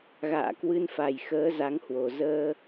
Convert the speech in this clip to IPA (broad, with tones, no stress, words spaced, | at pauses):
ɣa̰ː˧˨kwɨ˧nfa˨˩j xəː˨˦ za˨˦ŋhwo˨˩ zəː˧